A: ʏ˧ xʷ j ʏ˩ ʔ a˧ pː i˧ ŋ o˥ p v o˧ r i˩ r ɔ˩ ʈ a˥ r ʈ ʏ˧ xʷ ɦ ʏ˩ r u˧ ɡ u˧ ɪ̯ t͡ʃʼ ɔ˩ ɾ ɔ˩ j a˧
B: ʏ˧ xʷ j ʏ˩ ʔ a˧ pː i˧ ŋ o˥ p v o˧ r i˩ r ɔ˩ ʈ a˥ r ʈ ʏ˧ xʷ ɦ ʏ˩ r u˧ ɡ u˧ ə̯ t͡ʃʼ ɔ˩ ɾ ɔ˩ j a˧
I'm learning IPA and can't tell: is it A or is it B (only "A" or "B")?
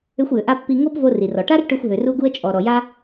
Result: B